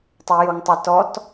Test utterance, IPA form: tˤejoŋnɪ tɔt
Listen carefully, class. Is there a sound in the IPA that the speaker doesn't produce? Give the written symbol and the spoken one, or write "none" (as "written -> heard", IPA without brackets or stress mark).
n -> tˤ